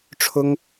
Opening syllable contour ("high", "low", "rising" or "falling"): high